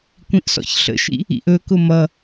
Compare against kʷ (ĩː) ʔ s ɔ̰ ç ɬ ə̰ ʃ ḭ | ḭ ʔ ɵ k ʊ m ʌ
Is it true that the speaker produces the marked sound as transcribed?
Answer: no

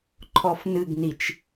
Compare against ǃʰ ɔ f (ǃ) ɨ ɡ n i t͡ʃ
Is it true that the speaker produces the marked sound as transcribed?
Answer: no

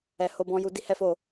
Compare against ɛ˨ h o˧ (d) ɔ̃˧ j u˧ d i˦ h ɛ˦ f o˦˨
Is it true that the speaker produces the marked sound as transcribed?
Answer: no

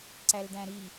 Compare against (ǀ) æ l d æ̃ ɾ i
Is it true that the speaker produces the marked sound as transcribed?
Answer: yes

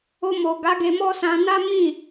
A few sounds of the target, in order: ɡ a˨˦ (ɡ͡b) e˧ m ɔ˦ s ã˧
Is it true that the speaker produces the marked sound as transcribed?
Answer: no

